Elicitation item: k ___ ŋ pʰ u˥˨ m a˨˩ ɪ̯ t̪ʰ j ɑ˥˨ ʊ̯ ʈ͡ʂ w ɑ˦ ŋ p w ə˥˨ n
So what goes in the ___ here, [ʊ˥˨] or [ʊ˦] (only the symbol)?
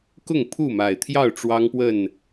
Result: ʊ˥˨